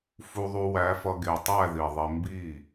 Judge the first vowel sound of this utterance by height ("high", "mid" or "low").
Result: high